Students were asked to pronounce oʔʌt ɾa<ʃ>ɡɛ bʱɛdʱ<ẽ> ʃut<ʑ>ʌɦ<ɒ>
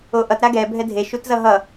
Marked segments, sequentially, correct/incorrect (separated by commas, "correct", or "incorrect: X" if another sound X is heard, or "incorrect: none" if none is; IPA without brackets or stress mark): incorrect: none, incorrect: e, incorrect: z, incorrect: ʌ